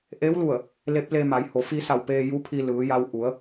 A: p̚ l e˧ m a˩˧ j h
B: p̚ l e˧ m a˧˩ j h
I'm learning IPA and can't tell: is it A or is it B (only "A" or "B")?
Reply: A